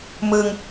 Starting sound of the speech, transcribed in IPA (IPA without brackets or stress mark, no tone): m